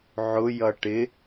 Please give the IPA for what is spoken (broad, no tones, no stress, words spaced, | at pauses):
ʕʊjʌ ʈɪ